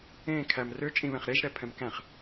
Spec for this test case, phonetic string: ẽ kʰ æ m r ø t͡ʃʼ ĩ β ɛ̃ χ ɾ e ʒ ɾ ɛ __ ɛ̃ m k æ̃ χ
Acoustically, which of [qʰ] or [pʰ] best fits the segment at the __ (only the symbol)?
pʰ